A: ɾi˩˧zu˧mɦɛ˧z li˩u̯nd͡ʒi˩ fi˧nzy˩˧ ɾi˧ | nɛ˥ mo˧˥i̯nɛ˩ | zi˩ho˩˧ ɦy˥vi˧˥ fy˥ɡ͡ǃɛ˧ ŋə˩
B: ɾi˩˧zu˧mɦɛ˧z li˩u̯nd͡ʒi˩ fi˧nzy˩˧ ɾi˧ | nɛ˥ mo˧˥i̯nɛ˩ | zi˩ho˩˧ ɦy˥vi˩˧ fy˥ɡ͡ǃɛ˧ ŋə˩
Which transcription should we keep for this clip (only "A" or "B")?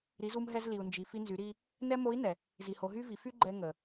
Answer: B